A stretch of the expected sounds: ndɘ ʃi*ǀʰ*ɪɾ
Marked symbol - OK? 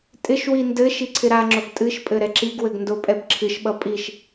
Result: yes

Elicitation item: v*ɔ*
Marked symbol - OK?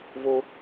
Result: no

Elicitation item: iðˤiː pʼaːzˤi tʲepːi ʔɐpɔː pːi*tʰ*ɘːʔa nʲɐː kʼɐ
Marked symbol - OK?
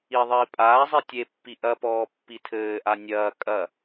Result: yes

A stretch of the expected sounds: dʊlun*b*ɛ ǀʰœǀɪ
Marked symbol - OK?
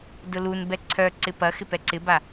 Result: yes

